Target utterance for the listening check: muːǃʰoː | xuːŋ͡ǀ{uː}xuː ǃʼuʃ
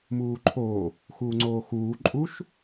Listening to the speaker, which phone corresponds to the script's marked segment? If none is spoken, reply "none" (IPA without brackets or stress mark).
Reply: oː